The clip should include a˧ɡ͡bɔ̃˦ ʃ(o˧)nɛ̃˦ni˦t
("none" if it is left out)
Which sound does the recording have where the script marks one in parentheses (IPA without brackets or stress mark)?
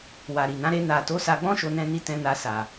o˦